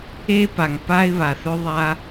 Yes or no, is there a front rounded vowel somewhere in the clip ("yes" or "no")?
yes